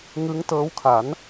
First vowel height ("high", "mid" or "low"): high